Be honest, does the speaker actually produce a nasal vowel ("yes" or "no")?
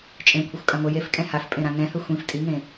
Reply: yes